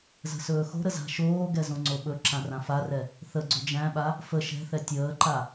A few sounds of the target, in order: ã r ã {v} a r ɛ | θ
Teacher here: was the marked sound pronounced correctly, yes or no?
no